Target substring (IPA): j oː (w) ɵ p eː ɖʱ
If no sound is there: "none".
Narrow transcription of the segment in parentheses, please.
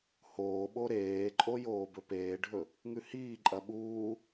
b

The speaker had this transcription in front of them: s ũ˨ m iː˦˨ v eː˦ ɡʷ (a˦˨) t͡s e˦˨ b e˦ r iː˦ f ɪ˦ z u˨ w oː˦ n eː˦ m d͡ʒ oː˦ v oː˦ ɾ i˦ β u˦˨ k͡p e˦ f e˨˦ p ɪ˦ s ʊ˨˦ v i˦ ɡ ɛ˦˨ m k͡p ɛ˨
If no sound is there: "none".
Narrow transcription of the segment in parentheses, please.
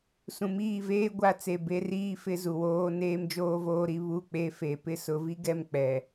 a˦˨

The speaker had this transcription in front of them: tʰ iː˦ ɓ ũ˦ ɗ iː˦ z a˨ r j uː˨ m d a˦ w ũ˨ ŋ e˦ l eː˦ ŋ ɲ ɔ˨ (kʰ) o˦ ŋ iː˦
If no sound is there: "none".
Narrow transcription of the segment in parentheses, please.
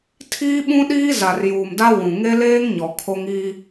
kʰ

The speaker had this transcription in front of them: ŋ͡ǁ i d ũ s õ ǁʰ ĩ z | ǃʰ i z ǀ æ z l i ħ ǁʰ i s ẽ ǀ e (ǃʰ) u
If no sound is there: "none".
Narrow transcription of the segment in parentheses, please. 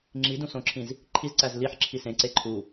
ǃʰ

